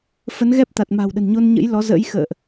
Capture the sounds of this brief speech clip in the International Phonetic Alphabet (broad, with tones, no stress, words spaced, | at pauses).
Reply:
fə˨˦n ɣɛ˦˥p̚ t̪a˨˩t̚ma̤˨˩wɗə̤˨˩n ɲo˧nɲə̰˧˥jlɔ˨˦zə̰ː˧˥j xə̰ː˧˨ʔ